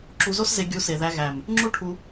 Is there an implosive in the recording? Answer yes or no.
no